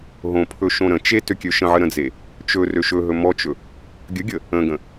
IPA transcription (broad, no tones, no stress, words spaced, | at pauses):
ɦõpʰɵ ʃõɾə̃t͡ʃe tøkʲøʃə̃ʕə ɾə̃d͡ze | t͡ʃɵ røʃɵɦɵ mɔt͡ʃɵ | ɡʲəɡʲə | ə̃ɡə̃